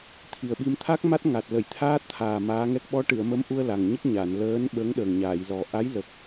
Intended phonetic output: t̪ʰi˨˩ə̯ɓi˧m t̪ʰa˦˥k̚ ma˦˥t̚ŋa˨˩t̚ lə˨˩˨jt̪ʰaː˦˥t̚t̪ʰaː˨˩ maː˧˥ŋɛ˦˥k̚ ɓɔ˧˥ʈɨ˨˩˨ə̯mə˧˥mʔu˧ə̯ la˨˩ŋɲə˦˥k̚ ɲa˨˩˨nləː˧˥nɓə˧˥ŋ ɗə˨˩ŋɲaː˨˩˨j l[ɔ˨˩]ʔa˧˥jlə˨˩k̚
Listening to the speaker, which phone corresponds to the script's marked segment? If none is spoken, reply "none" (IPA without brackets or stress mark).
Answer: ɔ˨˩